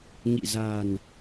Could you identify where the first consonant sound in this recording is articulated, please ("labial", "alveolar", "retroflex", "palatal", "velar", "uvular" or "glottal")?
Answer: velar